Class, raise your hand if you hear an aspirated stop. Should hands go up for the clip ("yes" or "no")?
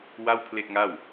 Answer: yes